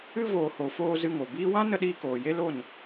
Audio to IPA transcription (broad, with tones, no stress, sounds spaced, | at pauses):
ɨ˧ v oː˨ h o˨ f oː˧ z ɨ˧ ŋ o˨ b iː˦ w ã˦ n ə˧ ɗ iː˧ k oː˨ j e˦ l o˦˨ n